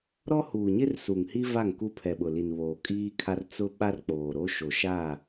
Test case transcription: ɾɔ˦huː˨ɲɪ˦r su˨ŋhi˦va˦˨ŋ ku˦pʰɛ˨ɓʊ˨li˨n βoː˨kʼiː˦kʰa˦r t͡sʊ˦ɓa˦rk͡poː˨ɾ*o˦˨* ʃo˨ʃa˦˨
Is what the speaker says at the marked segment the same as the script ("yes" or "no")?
no